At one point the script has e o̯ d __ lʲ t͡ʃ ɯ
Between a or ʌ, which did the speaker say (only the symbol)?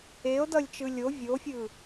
ʌ